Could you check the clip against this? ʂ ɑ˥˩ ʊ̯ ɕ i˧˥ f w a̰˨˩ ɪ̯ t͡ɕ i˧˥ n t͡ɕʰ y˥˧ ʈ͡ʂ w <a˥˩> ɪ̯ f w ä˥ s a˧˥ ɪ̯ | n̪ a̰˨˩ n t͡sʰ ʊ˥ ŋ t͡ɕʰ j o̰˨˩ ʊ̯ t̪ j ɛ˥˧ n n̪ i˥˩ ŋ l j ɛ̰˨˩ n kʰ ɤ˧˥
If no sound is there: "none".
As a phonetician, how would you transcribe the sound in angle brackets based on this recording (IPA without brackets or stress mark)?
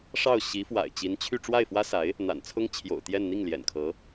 a˥˩